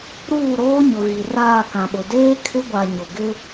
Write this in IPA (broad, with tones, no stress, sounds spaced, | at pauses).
ɾ uː˦˨ ɾ oː˦ ɲ ʊ˨ ɣ i˨ r aː˦˨ k ã˨ ɓ ʊ˨ d eː˦ kʰ ɪ˦ ɡʷ a˨ ɲ ʊ˨ ɡ ɪ˦